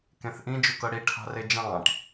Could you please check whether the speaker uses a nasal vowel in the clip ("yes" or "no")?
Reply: yes